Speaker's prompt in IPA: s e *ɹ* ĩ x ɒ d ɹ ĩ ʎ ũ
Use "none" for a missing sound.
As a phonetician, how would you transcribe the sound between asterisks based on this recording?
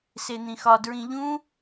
n̪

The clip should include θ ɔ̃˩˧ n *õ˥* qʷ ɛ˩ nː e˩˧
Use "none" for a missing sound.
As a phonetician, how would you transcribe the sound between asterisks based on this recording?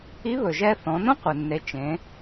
õ˥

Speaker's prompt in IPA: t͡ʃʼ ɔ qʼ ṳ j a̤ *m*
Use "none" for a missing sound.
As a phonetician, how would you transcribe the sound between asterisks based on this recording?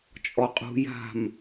m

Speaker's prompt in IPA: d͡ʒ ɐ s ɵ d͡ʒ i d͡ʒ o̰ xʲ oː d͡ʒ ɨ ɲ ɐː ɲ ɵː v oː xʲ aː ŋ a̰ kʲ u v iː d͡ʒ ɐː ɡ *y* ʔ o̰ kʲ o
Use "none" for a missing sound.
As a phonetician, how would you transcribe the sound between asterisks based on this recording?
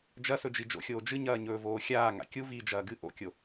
ɨ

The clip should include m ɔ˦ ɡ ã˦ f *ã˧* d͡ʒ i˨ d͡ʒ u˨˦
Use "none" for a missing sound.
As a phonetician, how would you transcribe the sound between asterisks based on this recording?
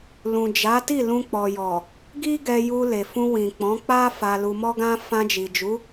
ã˧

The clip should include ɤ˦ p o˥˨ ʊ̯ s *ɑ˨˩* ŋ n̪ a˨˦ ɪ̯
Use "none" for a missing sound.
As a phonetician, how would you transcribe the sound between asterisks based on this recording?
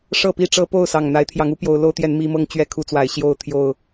ɑ˨˩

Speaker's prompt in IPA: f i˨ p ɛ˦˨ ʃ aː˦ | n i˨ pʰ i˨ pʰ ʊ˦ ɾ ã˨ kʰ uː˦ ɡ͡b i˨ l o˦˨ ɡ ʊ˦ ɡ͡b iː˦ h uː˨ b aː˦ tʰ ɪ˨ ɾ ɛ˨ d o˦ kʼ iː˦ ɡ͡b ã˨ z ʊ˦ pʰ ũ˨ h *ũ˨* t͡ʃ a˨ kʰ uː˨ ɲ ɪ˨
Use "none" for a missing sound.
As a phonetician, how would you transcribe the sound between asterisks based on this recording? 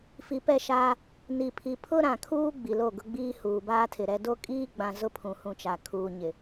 ũ˨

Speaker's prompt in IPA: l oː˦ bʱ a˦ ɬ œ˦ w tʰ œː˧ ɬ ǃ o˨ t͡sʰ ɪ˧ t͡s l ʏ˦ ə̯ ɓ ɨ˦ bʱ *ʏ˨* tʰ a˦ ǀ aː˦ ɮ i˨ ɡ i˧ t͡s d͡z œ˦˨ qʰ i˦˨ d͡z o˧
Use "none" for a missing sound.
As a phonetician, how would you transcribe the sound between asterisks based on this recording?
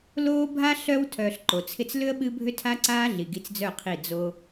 ʏ˦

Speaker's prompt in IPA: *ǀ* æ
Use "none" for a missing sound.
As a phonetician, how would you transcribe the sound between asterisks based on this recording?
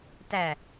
t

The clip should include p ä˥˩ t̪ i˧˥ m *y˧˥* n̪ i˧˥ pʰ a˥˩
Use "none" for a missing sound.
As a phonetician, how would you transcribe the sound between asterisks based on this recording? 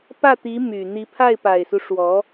y˨˩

